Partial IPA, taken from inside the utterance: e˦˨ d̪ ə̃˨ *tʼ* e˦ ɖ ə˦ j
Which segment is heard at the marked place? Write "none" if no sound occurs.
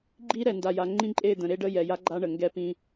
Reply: ɾ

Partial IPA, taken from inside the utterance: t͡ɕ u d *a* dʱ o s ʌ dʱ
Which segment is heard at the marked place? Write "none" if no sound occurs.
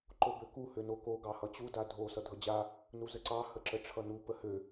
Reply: a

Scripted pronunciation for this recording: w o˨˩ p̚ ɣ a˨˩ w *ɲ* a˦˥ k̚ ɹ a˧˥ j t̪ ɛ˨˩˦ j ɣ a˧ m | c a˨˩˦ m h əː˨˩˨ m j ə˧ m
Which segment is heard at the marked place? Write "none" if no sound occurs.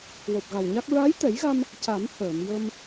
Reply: ɲ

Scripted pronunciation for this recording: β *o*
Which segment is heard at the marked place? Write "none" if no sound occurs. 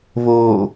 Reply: oː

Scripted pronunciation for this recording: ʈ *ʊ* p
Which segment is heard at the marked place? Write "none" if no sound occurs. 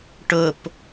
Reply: ʊ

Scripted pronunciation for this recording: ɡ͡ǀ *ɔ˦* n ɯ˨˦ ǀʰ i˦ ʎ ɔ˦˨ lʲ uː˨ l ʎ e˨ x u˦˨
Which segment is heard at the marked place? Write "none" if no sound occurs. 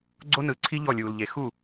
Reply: o˦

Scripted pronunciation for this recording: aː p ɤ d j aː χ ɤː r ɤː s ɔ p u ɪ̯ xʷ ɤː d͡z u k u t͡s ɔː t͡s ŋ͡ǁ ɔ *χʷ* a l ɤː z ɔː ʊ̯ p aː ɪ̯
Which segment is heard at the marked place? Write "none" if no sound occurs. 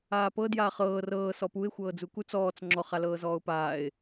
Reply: χ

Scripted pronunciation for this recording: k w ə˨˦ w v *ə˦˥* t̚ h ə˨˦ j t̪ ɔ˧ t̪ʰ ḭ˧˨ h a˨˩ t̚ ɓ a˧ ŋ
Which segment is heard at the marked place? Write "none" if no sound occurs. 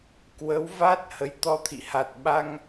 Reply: a˦˥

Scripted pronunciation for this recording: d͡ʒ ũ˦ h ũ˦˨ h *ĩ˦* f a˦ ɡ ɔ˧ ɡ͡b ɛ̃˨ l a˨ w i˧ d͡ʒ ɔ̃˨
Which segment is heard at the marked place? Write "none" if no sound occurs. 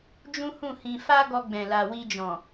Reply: ĩ˧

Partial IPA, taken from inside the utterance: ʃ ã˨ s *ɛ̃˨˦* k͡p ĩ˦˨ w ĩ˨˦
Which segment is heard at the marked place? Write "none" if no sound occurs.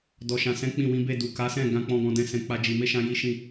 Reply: ɛ̃˨˦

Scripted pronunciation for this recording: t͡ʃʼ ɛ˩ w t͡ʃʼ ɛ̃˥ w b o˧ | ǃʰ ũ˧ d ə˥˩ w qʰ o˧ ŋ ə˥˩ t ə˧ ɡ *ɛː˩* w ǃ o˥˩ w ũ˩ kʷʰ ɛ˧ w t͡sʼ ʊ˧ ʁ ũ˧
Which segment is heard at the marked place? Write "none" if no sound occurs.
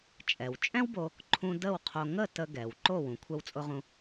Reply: ɛ˩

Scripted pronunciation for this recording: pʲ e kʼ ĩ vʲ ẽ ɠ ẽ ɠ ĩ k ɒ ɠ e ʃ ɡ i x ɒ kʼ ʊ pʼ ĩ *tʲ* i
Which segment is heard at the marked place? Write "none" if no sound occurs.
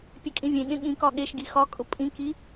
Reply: k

